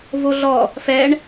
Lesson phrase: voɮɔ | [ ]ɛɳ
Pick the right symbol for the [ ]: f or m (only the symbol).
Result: f